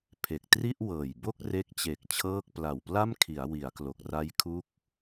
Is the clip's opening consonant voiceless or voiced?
voiceless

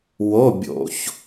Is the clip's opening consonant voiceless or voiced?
voiced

